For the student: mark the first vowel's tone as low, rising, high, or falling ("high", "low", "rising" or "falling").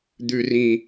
low